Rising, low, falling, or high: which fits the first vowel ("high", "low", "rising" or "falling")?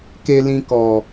high